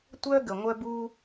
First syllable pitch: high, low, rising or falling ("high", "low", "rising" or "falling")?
high